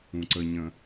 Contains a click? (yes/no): yes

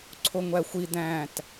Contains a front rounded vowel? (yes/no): no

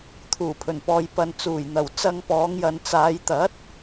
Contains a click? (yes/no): no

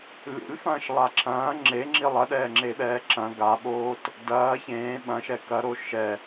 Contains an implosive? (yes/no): yes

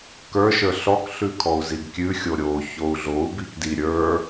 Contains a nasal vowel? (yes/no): no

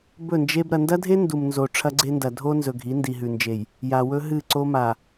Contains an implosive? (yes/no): no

